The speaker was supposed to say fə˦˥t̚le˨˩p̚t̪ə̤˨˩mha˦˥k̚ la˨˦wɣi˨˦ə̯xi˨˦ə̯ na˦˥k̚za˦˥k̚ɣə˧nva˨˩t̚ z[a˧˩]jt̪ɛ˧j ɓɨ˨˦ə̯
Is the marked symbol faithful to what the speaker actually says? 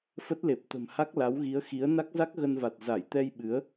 yes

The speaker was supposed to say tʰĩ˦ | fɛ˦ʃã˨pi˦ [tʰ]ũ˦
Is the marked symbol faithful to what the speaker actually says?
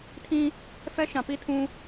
yes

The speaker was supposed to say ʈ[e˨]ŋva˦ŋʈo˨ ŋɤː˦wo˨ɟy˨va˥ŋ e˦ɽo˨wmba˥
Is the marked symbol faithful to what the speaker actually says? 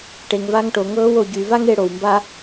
yes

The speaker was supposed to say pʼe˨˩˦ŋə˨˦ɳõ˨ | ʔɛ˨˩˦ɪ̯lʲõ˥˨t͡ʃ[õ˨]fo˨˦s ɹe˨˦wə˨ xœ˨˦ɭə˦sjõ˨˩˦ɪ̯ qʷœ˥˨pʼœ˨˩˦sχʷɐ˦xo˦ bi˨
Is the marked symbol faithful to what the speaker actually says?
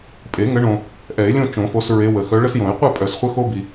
no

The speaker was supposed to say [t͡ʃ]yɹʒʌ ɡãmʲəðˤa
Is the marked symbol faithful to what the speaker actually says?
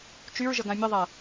yes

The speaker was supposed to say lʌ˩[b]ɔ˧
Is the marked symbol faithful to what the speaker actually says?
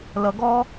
no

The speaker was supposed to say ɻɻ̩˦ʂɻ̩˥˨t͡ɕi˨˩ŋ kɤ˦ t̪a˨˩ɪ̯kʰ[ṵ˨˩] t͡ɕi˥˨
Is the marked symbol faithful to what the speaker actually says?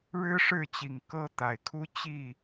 no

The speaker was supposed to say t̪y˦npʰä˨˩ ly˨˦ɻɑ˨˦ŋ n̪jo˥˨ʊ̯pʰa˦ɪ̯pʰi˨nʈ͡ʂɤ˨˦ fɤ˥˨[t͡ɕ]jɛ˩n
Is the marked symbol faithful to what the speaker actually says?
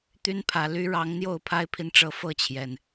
no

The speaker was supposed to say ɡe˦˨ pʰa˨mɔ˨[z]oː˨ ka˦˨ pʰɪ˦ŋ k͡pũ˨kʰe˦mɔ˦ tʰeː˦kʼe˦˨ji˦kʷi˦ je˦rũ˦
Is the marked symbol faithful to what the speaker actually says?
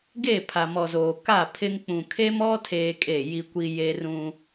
yes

